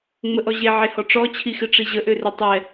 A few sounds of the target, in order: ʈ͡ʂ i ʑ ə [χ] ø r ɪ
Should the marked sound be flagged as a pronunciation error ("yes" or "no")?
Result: yes